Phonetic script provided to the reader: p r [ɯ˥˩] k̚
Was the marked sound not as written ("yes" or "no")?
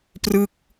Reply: no